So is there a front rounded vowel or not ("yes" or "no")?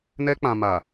no